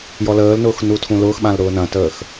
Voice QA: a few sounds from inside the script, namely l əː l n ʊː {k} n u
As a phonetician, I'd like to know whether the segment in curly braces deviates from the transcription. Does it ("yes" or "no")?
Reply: yes